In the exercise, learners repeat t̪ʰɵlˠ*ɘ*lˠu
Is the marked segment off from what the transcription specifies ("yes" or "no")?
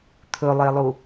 yes